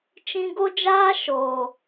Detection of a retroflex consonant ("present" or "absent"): absent